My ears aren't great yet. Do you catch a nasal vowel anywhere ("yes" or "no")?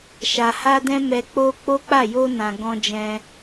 yes